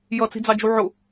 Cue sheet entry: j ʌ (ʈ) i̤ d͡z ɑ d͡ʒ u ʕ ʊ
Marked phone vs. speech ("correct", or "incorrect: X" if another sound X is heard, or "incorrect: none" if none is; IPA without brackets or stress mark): incorrect: t͡s